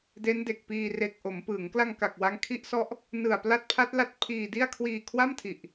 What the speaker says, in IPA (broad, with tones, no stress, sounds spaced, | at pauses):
d e˦˥ n d e˨˩ k̚ p iː˧ r e˨˩ k̚ ʔ o˩˦ m p ɯ˩˦ ŋ k l a˧ ŋ k a˨˩ k̚ w a˦˥ ŋ kʰ i˦˥ ʔ s ɔ˦˥ ʔ | n ɯ˨˩ a̯ p l a˦˥ t̚ pʰ a˦˥ t̚ l a˦˥ t̚ pʰ iː˧ d i˥˩ a̯ kʰ w iː˧ kʰ w a˥˩ m tʰ i˨˩ ʔ